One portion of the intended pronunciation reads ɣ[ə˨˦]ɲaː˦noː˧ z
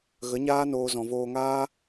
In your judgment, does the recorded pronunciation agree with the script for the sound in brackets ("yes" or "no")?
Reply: yes